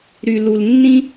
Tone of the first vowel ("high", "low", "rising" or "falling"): low